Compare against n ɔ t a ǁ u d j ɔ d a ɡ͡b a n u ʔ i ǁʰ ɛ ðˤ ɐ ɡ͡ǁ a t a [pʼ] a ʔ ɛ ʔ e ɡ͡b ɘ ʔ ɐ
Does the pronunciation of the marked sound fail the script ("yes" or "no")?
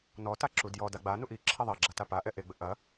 yes